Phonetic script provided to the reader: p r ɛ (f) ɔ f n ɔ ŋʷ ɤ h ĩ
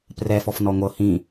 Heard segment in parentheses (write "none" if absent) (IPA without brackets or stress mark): f